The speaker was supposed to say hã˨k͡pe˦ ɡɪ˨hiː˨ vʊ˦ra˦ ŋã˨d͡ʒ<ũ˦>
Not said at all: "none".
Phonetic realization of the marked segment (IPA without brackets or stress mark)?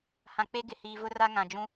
ũ˦